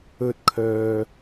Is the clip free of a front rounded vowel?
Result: no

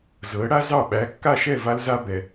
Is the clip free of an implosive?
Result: no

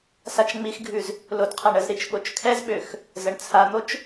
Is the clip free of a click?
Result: yes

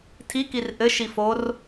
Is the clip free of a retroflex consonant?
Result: yes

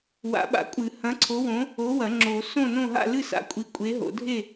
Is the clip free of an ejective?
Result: no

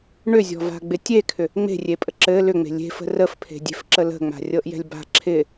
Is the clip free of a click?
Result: no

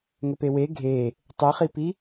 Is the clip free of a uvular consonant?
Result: no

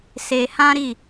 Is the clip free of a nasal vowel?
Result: no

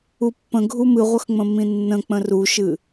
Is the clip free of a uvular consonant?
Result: no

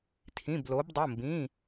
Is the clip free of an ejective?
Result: yes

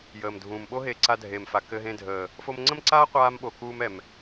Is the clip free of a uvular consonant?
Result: no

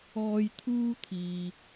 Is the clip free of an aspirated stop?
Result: no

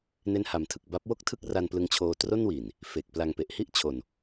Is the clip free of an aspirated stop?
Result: no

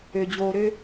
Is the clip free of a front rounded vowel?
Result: no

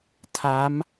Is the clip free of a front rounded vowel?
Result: yes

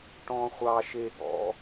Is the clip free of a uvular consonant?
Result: no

